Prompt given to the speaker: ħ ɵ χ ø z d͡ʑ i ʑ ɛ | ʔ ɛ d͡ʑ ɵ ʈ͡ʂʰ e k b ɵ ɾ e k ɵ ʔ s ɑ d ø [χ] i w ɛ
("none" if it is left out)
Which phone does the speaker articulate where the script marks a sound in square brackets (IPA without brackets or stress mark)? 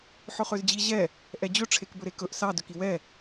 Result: k